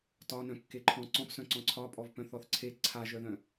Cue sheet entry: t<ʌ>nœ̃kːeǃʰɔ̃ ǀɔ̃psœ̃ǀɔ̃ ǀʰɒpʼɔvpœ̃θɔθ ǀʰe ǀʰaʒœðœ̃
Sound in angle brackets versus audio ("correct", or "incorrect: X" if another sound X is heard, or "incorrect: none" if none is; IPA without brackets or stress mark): incorrect: ɒ